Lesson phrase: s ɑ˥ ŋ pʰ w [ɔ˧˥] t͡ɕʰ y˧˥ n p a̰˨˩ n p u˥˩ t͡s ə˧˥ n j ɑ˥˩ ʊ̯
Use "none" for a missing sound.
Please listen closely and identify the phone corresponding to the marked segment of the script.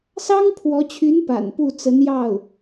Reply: ɔ˧˥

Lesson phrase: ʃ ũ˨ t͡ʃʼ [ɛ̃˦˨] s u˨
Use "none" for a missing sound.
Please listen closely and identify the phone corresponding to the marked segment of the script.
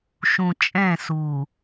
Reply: ɛ̃˦˨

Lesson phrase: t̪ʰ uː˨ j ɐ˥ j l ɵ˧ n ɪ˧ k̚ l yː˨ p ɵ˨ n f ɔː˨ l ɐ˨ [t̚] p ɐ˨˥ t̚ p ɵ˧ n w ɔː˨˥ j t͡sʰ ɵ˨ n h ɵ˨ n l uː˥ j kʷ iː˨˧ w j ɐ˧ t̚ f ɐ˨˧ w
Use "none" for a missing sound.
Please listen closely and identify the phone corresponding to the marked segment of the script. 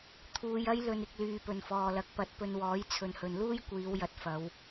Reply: k̚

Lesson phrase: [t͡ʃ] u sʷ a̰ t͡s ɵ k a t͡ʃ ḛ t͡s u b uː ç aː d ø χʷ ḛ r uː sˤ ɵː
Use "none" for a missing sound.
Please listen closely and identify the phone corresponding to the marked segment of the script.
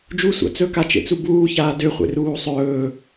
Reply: d͡ʒ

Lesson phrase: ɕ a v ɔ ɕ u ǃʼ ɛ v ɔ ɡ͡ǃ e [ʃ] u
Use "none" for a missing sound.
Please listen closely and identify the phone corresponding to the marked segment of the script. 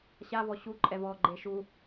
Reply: ʃ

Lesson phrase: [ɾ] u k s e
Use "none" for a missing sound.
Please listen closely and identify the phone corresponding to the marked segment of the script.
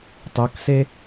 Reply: tˤ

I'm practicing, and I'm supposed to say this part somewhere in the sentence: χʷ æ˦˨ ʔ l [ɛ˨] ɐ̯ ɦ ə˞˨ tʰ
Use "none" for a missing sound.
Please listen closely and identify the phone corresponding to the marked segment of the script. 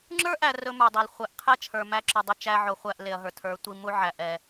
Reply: e˨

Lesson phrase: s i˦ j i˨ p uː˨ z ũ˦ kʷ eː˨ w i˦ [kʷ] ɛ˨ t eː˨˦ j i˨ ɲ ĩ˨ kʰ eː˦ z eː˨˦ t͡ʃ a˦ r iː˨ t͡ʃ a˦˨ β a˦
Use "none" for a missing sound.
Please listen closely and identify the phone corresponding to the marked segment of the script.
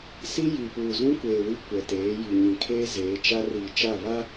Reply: kʷ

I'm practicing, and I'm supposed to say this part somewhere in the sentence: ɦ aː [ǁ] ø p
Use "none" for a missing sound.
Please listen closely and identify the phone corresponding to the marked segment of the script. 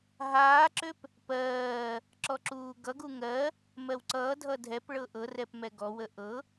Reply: ǁ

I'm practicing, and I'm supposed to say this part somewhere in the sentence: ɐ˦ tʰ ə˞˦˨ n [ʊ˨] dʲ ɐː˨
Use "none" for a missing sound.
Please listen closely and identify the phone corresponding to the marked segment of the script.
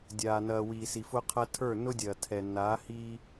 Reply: ʊ˦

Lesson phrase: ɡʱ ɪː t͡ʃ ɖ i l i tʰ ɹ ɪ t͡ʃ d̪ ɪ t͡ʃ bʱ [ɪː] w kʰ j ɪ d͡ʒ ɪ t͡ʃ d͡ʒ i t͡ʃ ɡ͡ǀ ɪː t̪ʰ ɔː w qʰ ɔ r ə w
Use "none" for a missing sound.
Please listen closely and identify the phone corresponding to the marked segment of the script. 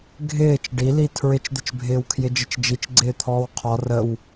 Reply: ɪː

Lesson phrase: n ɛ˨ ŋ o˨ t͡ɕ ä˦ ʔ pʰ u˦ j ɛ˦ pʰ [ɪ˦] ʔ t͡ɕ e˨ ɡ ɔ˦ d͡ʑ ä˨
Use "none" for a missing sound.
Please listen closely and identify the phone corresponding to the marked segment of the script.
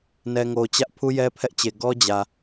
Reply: ɛ˦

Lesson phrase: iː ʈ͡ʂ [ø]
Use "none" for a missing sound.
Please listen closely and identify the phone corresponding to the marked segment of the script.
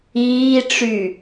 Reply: y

